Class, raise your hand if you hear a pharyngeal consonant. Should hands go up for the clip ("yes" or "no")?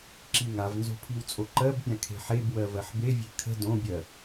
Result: yes